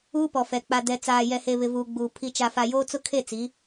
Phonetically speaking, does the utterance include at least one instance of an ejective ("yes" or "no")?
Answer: no